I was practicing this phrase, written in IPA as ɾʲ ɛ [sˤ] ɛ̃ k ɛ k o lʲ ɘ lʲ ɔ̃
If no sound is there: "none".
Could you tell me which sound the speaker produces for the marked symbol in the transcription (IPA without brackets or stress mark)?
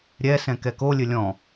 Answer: s